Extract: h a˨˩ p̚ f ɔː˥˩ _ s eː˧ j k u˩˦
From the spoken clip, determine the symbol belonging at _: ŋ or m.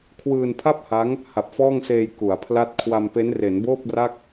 ŋ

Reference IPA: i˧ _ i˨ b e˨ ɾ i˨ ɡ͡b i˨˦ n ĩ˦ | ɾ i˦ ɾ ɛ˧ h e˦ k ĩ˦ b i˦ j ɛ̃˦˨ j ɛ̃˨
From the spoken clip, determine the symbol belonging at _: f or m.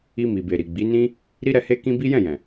m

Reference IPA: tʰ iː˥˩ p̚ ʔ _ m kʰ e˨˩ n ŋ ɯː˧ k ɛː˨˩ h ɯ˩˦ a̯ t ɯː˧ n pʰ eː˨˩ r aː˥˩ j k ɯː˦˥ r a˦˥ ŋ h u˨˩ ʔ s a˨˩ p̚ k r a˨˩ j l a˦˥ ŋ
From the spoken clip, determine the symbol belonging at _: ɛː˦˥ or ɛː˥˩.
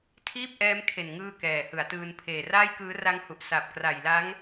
ɛː˦˥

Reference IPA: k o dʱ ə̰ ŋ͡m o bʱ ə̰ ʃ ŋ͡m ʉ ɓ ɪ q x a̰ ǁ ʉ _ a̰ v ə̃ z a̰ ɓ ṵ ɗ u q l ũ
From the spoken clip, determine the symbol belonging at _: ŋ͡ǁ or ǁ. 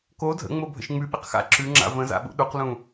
ŋ͡ǁ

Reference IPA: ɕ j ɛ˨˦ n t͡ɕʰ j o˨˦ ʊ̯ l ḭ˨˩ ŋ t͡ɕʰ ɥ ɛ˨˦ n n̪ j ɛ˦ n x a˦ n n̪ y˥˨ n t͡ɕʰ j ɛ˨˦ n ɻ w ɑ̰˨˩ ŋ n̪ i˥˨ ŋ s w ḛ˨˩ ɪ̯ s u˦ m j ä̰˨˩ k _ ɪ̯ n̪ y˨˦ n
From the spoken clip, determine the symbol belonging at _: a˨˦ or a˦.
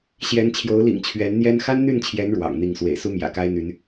a˦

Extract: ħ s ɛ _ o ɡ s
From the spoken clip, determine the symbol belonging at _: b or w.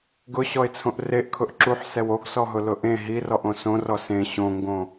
w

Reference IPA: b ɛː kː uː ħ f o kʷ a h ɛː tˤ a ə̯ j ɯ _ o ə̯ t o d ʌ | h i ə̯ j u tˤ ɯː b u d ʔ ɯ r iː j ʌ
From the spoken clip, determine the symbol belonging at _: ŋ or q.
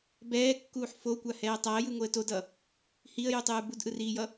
ŋ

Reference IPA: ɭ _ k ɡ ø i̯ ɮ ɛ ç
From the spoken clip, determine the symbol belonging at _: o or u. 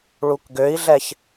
u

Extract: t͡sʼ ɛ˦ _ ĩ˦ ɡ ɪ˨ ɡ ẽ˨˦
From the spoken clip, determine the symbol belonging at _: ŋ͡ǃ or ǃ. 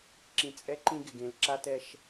ǃ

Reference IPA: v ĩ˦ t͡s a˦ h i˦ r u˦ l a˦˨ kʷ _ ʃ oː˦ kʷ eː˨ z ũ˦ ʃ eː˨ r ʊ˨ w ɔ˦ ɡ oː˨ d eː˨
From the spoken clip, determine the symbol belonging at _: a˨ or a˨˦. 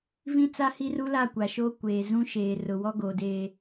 a˨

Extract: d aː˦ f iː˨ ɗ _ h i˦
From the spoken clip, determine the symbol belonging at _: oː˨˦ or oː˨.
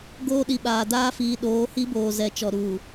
oː˨˦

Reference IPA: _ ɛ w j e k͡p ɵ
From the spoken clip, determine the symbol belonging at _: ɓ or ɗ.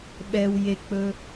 ɓ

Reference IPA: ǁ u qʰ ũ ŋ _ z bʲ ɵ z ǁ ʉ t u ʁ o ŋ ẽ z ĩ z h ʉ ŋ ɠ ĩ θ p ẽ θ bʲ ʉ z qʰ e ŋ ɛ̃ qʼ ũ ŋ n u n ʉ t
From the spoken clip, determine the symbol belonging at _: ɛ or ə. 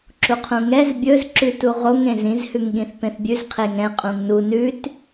ɛ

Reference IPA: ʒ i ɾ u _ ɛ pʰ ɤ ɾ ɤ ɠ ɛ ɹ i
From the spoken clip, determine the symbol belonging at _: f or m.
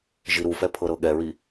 f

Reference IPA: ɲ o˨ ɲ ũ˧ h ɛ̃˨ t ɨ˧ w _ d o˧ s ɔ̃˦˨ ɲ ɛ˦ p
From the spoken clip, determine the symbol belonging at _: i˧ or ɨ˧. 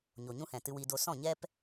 i˧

